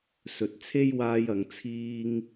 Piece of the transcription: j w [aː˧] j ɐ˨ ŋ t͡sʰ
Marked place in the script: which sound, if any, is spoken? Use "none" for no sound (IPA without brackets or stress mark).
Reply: aː˧